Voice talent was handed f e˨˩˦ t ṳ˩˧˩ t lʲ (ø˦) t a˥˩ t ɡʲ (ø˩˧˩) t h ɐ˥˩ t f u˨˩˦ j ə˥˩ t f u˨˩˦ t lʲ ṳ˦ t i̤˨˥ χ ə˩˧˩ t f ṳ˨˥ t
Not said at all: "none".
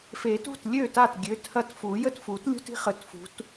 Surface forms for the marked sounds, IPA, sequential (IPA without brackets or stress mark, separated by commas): ø˥˩, ø˩˧˩